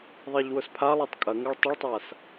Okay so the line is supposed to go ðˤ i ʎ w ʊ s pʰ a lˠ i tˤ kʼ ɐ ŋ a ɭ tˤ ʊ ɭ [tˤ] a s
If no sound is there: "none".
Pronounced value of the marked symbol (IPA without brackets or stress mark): tˤ